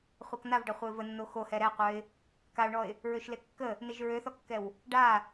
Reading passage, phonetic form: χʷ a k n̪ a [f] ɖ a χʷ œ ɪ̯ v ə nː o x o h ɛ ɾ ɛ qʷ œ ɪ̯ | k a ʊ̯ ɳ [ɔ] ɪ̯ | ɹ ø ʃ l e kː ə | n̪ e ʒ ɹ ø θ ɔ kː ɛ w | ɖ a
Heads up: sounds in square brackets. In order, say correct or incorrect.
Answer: incorrect, correct

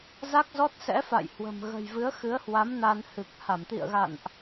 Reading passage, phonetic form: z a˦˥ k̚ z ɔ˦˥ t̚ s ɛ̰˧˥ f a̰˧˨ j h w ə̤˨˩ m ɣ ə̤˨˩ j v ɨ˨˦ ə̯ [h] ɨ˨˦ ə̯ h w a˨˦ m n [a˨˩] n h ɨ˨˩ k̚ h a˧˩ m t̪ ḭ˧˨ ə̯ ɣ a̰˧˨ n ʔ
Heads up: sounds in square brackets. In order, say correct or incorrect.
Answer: incorrect, incorrect

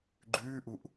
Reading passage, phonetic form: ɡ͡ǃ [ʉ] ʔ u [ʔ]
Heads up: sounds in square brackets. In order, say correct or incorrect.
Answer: incorrect, correct

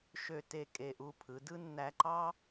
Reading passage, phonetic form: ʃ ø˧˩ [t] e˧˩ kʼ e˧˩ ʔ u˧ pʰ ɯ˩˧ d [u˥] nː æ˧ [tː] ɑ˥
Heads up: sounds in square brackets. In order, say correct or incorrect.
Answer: correct, incorrect, incorrect

